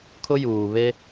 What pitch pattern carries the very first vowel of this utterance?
high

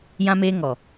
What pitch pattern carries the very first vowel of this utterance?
high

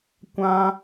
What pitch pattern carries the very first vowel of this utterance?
high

